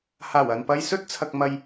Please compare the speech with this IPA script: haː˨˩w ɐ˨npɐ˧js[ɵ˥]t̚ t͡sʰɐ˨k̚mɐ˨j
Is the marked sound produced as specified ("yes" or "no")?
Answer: yes